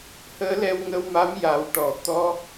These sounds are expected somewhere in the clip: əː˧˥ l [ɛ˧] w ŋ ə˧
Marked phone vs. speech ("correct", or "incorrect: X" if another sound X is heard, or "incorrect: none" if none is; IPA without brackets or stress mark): correct